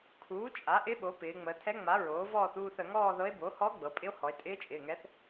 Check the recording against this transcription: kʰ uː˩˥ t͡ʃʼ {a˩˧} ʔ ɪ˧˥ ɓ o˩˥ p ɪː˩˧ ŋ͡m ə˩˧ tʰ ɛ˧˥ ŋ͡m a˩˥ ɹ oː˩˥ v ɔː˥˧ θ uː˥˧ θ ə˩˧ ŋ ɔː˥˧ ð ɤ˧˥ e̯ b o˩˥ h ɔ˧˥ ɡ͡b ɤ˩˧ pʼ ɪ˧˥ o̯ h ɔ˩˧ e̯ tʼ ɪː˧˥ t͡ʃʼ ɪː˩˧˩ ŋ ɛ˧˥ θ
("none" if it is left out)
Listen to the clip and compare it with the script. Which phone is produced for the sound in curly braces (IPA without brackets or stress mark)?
a˩˥